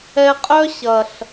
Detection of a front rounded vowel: present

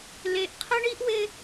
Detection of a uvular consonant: present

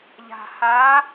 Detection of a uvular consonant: absent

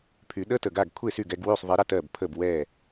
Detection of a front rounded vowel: present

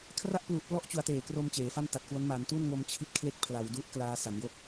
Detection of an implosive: absent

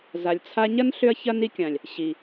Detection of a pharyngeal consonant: absent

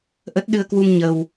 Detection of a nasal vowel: absent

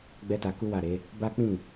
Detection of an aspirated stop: absent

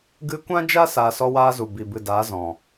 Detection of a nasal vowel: present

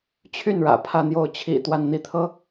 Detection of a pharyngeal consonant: absent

